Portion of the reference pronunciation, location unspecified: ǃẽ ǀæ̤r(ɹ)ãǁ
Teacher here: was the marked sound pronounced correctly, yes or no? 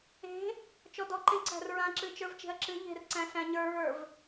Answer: yes